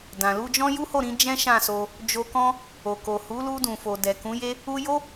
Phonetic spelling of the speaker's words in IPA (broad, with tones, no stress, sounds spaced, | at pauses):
d ã˨ l u˧ d͡ʒ ɔ̃˦ j u˦ h o˦˨ ɾ ĩ˨˦ d͡ʒ ɛ̃˦ ʃ ã˦˨ s o˧ | d͡ʒ o˧ k ɔ̃˦ | o˨ k o˨ h u˨˦ l u˧ d ũ˨ f o˨ d ɛ˨ k ũ˨˦ j e˦ | u˧ j o˦